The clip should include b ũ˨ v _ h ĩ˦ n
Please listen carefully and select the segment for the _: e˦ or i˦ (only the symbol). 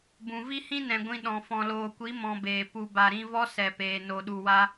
i˦